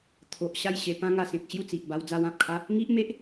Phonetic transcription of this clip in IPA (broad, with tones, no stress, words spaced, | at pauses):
t̪ʰo˨ʔ ɕa˥˧jɕe˧ pã˧ŋa˨˩ sẽ˨k̚ ɕju˥˧t͡si˨ʔba˧w d͡za˧wã˨p̚kʰa˦ | ŋi˦ʔme˦ʔ